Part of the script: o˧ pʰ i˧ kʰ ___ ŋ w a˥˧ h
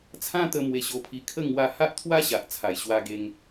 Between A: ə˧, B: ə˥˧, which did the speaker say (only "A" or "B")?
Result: B